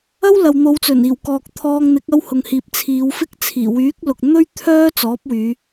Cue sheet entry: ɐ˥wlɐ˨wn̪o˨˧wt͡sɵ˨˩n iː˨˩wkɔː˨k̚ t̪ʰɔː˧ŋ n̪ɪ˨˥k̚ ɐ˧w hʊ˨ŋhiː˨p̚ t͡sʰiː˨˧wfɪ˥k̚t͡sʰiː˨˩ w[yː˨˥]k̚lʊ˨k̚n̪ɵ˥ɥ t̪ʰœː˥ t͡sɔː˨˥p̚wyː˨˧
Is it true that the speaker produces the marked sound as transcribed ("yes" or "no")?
yes